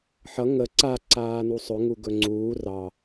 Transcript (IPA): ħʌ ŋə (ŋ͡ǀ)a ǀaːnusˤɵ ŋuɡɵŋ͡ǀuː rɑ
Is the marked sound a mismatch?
yes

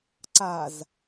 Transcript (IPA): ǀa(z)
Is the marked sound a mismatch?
no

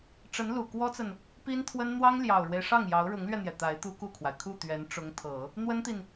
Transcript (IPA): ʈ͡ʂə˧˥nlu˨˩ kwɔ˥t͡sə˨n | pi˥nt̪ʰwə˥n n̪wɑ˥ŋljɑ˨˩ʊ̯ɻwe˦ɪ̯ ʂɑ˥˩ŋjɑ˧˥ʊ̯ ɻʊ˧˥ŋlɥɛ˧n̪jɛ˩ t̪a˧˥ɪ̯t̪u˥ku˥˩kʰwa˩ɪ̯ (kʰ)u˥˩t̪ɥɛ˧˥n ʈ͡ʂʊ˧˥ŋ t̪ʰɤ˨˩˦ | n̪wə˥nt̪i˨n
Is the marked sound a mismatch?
no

